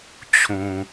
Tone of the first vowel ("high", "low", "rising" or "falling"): low